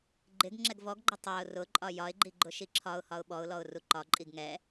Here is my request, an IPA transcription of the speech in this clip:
ɡ͡ǃ ɪ ɡ ŋ͡ǁ ɛ ɡ v ɔ ɡ ɡ͡ǃ ʊ tˤ æ ʊ̯ r ʊ ǃʼ ɒ j ɒ ɪ̯ ɡ͡ǃ i ɡ͡ǃ ʊ ʃ i ǁʰ ɒ ʊ̯ h ɒ ʊ̯ ɓ ɔ ʊ̯ l ɔ ʊ̯ r u ǃ ɒ ǃʼ i ɡ ŋ ɛ

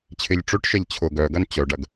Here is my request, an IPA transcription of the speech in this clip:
t͡ɕʰ ɪ ʎ ʈ͡ʂ ø ʈ ʃ ɛ ʎ t͡ɕʰ ʊ ɡ œ ɡ ɐ n t͡ɕ œ ɖ ɐ ɡ

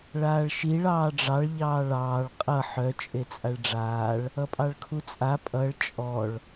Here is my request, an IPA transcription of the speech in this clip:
ɭ aː ɭ ʃ i ɭ ɑː ɖ͡ʐ ɑ ɭ ʎ ɑː ɭ ɑː ɭ qʼ ʌ ħ œ t͡ʃʼ e t͡sʼ a ɭ ɖ͡ʐ aː ɭ | ʌ pʼ ɑ ɭ kʰ u t͡sʼ a pʼ ʌ ɭ t͡ʃʼ ɔ ɭ

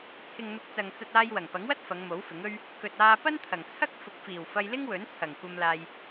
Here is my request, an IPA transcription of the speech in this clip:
t͡sʰ ɪ˨ ŋ n̪ ʊ˨˥ k̚ t͡s ɐ˨ ŋ t͡s ɐ˧ t̚ aː˧ j w ɐ˨˩ ŋ p ɐ˨˥ ŋ w ɐ˥ t̚ f ɐ˨˧ ŋ m o˨˥ w f ɪ˨˥ ŋ ɵ˥ ɥ | k ɵ˨ t̚ aː˧ p ɐ˥ n t̪ʰ ɐ˨˩ ŋ t͡sʰ ɐ˥ k̚ f ʊ˨˥ k̚ f iː˨˩ w f ɐ˧ j l ɪ˥ ŋ w ɵ˨˥ n t͡sʰ ɐ˨˩ ŋ kʷ ɐ˧ m l aː˧ j

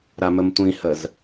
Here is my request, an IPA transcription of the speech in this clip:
ɾ a m ə m tʷ ĩ h ə z

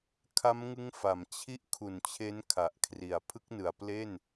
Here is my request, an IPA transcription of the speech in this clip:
kʰ a˦˥ m ŋ ɯ˦˥ ŋ f a˨˩ m t͡ɕʰ i˦˥ ʔ kʰ u˨˩ n t͡ɕʰ e˦˥ n kʰ a˨˩ ʔ kʰ r i˨˩ a̯ pʰ ɯ˦˥ k̚ n ɯ˨˩ a̯ p l e˥˩ n

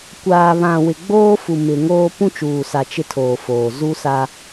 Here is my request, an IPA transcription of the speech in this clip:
kʷ aː˨ β ã˨ w ɪ˨ ɡ͡b oː˦ f u˨ m ɪ˨ ŋ oː˦ p ũ˦ t͡ʃ uː˨ s a˨ t͡ʃ ɪ˦ tʰ oː˨ f oː˨ z u˦ s a˦

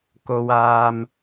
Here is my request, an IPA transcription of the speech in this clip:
k o˨ w aː˨ m

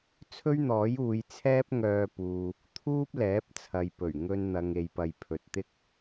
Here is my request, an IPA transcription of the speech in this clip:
t͡sʰ ɵ˥ ɥ n̪ ɔː˨˥ j uː˨˧ j t͡sʰ ɛː˥ p̚ ŋ œː˧ p uː˨ | t̪ʰ uː˥ p̚ l ɛː˨˥ p̚ t͡sʰ ɐ˨ j p ɵ˨˩ ɥ ŋ ɵ˧ n n̪ ɐ˨ ŋ e˧ j p ɐ˧ j pʰ ɵ˨ t̚ t̪ ɪ˥ k̚

